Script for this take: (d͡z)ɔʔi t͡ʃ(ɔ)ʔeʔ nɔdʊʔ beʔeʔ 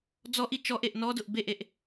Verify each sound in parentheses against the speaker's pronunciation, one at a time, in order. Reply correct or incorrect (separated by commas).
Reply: correct, correct